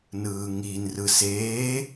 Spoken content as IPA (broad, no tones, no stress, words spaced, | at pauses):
nɯːŋinrɯ seː